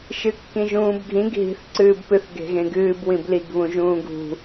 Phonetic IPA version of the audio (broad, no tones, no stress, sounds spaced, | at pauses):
ʃ ɨ kː ĩ ʒ ũː b ɡʱ ĩ ɡ ɦ i̤ θ ǀ ɨː b p ɨ θ ɡ e̤ ɣ ẽ ɡ ɨː b w ĩ b l i ɡ β ũ ʒ ũː ɡ ṳ